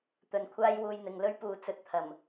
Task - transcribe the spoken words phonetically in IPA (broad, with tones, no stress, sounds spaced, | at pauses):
t̪ ɵ˨ n kʷʰ aː˥ j w uː˧ j n̪ ɪ˨ ŋ l ɵ˥ ɥ p uː˨ t͡s ɵ˨ t̚ t̪ʰ ɐ˨˩ m